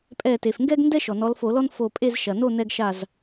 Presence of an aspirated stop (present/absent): absent